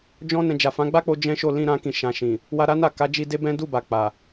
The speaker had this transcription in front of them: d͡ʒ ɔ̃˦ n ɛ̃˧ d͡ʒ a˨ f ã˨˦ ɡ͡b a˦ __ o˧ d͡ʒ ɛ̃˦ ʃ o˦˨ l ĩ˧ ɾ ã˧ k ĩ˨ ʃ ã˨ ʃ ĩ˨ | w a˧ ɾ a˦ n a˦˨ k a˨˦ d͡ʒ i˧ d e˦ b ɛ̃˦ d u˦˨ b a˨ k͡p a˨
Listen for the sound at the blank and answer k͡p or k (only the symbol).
k͡p